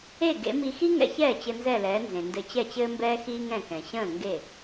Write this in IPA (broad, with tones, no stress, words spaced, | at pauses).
e˥˩ɡḛ˩˥mi˧ xi˥ŋɛ̰˧çɛː˥˩ t͡ɕɘ˧nzɛ˥˩lɛː˩˥nzẽ˩ ndɘ˧t͡ɕɛ˥˩t͡ɕɘː˥mbɛː˥ xiː˥ŋɛ̃˥˩kɛ̃˩ ɕə̃ː˥˩ŋɡe˥˩